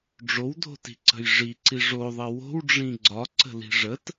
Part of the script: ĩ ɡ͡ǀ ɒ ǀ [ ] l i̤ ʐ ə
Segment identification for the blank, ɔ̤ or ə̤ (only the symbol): ə̤